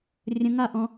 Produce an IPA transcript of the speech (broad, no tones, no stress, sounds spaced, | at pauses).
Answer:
rʲ ə̃ ŋ a ʔ ɔ̃